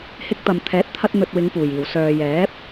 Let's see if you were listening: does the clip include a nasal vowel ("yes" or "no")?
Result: no